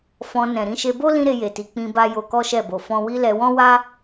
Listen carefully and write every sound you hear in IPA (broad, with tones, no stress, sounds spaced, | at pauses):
f ɔ̃˧ n ɛ̃˨ ɾ ĩ˧ ʃ e˧ b o˦ l ĩ˦ ɾ e˧ j e˨ t i˨ k͡p ĩ˧ b a˧ j o˧ k ɔ˦ ʃ ɛ˦˨ b o˨ f ɔ̃˧ w i˦ l ɛ˧ w ɔ̃˦ w a˦